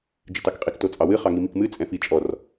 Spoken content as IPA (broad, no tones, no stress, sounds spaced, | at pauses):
d͡ʒ ɨ t ɑ k qʼ i k t o t͡sʼ ɑ w ɨ χ ɑ ŋ i m i k m ɨ t͡sʼ ɛ̃ f i t͡ʃʼ ɔ r